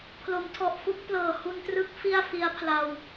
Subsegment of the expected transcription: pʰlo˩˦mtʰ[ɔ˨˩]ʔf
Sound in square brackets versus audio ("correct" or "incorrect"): correct